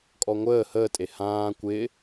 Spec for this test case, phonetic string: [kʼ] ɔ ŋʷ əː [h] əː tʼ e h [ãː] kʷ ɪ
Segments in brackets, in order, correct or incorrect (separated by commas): correct, correct, correct